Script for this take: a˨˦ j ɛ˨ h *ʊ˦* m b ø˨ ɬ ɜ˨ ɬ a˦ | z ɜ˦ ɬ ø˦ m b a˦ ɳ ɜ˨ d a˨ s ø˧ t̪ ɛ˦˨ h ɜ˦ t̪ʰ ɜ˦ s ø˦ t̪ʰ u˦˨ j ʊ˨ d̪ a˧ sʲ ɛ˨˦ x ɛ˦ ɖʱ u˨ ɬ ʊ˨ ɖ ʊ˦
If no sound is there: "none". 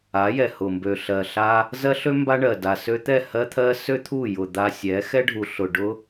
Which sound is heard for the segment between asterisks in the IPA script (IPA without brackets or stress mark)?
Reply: ʊ˨